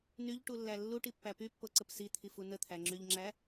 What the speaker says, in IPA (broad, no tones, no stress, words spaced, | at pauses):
nyʎʈulːæ lːuʈipːæ pypːoǀəp sit̪ʰifu nət̪ʰæŋ͡ǁyʎŋ͡ǁæ